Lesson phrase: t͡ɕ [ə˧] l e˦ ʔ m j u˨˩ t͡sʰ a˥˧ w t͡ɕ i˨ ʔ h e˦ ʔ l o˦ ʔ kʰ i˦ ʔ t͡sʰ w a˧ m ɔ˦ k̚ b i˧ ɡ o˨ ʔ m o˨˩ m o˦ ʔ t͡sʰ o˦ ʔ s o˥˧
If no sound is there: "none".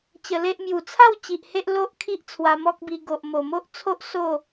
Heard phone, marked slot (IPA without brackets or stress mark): ə˧